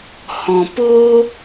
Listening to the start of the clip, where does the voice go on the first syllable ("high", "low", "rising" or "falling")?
low